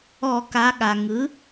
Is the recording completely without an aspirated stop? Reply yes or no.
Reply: yes